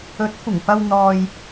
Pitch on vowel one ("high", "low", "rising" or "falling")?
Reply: rising